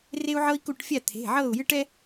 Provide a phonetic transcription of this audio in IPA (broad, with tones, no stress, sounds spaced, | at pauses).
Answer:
r e˥ u̯ ʕ ɤ˥ i̯ k u˥˨ ʈ fʲ a˥˨ t̪ʰ e̤˩˧˩ ʕ ɤː˥˨ u̯ j ɨː˥ ʈ ɛ˥